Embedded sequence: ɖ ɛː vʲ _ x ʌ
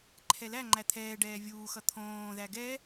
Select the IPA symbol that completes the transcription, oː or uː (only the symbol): uː